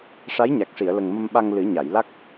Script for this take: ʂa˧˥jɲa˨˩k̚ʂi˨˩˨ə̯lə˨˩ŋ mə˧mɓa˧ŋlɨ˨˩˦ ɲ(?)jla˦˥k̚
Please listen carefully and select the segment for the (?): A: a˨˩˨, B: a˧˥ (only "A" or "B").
A